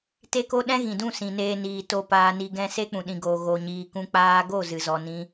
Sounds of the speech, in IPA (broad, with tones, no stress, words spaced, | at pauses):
te˦ko˦ ɗɛ̃˦ɣĩ˨dũ˦˨ sĩ˨neː˧niː˨ to˧ paː˧ni˧ ɡɛ̃˧ se˦k͡pũ˨ɗĩ˨ɡoː˨ ɣo˨ɲiː˨kũ˧ k͡paː˧ɡo˦˨ zɨ˨zɔ˨nĩ˧